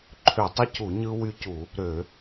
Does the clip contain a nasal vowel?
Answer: no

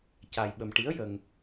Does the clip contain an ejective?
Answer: no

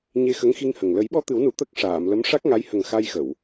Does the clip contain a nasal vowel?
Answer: no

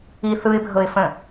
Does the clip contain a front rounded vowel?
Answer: no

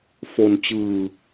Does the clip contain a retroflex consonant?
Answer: no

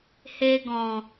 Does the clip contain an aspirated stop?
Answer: no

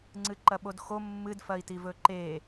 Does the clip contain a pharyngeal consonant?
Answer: no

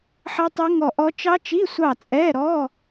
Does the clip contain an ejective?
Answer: yes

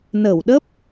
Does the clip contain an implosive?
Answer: yes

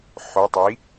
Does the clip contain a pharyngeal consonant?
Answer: yes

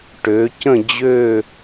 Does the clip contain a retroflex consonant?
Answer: yes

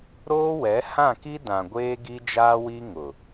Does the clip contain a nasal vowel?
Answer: yes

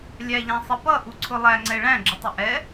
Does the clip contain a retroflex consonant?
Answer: yes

